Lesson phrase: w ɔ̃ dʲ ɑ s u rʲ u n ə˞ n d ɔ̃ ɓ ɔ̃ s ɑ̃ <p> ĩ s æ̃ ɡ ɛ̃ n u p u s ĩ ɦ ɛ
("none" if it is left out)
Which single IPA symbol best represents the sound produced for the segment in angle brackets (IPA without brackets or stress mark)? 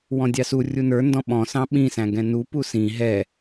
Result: ɓ